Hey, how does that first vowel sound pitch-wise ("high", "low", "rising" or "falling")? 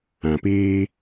low